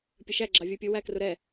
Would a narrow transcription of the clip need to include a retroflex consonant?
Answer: no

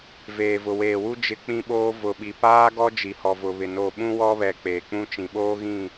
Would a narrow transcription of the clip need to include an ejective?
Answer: no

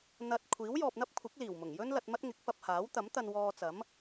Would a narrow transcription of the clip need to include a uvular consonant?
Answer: no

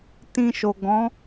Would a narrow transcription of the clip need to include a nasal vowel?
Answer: yes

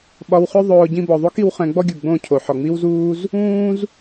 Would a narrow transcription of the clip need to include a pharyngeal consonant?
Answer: yes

